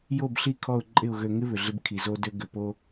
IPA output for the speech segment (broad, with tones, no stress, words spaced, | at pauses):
jo˦˨bɬi˦˨kʰɔ˦˨ʊ̯ ǃʼɪ˦˨ʊ̯ ɣø˨ŋɪ˦ βʏ˨ɮɪ˦b kʰi˨zo˦dø˦ ɡʏ˨po˦